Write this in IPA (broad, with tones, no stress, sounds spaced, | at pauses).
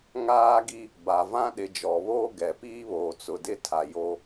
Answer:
ŋ aː˦ ɡ i˦ | b a˨ v ã˦ ɗ ɪ˨ d͡ʒ ɔ˨ β oː˦ ɡ ɛ˨ p iː˦ β oː˨ t͡s ʊ˨ d ɪ˦ tʰ a˨ j o˦